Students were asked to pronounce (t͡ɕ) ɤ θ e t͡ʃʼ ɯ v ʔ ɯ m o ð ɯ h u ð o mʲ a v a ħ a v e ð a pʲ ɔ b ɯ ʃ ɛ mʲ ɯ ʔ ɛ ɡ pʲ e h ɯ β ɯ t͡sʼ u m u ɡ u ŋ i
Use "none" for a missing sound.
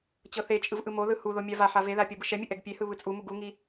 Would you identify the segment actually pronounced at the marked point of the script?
t͡ɕ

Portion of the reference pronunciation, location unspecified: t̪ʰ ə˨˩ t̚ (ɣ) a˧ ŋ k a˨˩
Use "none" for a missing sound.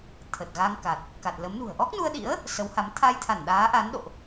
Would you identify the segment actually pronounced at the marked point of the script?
ɣ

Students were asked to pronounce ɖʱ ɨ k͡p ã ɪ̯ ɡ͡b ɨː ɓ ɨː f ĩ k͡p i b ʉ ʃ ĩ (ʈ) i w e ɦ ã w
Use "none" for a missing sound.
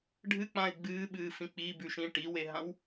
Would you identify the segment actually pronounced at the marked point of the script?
ʈ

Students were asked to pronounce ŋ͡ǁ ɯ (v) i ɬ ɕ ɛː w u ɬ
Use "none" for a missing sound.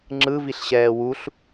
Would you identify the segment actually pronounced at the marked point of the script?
v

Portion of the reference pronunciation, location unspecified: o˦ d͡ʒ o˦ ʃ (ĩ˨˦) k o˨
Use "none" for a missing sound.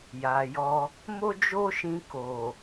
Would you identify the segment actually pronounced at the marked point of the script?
ĩ˧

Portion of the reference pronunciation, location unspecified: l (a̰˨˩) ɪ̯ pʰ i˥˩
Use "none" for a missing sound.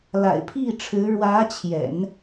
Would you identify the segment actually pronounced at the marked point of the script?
a̰˨˩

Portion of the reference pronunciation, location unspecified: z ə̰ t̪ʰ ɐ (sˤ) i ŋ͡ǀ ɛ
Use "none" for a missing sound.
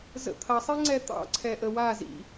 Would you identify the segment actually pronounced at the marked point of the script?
sˤ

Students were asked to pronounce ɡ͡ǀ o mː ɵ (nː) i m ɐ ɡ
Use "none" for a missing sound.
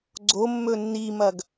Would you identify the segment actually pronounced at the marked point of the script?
nː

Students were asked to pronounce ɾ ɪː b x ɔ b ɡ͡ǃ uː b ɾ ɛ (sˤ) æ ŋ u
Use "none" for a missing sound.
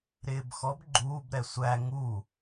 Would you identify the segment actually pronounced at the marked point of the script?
sʷ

